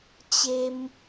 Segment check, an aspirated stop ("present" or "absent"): absent